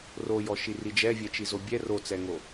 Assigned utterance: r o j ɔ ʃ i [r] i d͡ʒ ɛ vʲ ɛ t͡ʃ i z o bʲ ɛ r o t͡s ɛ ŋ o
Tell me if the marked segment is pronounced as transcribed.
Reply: yes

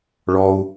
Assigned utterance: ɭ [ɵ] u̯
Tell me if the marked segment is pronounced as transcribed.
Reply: no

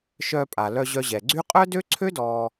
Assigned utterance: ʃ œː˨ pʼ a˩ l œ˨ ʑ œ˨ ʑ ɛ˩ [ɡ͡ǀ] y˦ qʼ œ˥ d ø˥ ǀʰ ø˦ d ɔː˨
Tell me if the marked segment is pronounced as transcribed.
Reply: yes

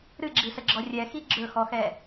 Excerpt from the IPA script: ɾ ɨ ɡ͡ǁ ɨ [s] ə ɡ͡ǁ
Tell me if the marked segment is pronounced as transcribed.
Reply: yes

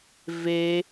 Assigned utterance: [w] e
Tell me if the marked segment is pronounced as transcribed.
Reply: no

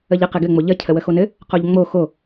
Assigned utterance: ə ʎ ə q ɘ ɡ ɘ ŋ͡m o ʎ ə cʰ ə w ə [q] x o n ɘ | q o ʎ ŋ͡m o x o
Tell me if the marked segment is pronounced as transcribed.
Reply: no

